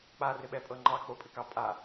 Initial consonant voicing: voiceless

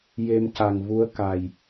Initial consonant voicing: voiced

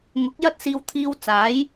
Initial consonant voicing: voiced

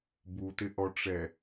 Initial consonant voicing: voiced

